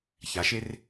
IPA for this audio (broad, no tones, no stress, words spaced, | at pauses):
çaʃer